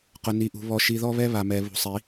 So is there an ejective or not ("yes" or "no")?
no